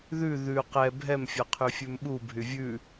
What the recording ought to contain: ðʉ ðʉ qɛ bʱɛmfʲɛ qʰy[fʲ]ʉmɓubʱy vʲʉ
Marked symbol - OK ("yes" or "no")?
yes